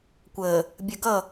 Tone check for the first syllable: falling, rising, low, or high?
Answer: low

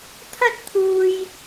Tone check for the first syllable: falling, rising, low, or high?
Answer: high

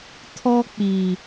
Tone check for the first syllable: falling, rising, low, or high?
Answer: high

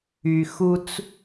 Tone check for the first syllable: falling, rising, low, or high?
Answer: low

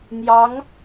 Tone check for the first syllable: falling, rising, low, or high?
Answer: rising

